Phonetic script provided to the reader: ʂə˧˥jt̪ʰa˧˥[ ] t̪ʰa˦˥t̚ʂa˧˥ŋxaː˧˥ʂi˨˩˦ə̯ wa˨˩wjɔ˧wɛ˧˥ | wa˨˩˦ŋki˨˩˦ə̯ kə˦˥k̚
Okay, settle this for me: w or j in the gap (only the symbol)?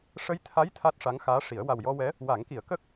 j